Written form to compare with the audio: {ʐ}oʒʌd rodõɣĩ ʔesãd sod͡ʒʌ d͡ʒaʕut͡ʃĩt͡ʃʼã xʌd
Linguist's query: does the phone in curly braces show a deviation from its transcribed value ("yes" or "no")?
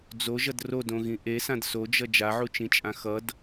yes